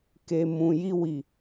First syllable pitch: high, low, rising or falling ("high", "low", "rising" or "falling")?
low